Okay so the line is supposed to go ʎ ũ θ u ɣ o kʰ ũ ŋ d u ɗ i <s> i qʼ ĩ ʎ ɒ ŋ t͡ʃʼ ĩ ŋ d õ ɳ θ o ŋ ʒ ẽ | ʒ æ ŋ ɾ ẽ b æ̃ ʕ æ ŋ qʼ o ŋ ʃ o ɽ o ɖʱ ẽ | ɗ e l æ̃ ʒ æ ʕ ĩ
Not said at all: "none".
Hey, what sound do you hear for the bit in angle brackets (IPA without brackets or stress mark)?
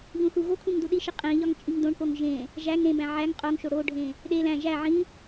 ʃ